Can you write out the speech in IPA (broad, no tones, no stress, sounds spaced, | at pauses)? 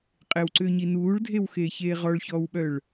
qʼ e w ǀ ʏː ɲ i n uː ɭ dʱ e w x eː ç eː ʁ ɔ ɭ ç ɔː w ɓ œ ɭ